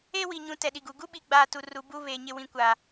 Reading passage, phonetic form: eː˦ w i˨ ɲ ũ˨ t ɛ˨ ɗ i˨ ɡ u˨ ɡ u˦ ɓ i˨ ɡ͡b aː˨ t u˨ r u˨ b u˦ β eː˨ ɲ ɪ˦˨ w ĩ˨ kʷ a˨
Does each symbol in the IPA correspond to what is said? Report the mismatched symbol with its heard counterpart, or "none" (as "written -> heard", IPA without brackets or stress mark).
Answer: none